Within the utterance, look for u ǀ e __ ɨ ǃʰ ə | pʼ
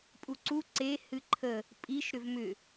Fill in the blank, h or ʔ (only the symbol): h